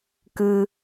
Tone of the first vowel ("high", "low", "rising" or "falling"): low